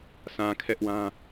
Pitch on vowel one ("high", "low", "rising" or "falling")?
low